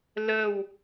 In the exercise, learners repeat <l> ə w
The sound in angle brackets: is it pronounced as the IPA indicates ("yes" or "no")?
yes